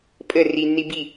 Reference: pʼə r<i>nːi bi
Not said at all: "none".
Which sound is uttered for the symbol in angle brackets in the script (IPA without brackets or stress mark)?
i